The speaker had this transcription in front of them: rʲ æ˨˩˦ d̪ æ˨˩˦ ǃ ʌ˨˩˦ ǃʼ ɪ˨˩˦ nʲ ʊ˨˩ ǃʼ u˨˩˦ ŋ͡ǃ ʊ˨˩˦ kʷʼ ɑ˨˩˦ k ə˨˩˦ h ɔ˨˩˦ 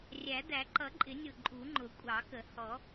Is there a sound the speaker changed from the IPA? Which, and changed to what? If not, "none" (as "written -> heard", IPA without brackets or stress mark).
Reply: none